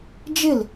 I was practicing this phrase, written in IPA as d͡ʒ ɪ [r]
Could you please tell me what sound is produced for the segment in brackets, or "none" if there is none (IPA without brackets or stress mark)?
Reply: l